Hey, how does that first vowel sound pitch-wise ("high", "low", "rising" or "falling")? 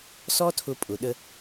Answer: high